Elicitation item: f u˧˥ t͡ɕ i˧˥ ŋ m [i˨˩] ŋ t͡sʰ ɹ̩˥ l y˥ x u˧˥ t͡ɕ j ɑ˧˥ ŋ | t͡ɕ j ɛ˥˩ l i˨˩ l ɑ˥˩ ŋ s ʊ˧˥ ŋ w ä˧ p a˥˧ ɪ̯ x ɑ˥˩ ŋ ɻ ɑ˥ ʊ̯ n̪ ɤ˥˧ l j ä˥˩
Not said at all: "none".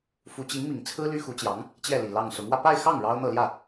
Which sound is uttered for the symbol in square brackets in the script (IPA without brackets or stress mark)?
i˨˩